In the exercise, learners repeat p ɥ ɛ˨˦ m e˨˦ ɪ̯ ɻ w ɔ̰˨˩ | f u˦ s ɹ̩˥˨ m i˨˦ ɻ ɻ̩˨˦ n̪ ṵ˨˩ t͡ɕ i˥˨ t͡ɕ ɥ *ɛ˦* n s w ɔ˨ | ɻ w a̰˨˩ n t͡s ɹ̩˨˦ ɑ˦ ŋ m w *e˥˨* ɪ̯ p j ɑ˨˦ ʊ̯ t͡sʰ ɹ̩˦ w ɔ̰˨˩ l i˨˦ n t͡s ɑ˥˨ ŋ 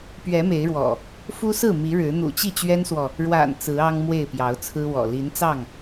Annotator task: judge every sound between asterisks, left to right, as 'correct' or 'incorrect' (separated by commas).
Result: correct, correct